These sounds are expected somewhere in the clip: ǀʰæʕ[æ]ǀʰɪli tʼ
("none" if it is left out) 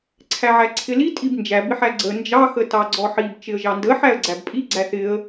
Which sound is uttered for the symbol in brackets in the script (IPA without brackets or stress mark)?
æ